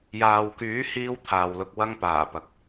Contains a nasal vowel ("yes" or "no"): no